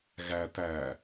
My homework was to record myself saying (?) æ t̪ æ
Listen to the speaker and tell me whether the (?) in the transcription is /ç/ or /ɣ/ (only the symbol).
ɣ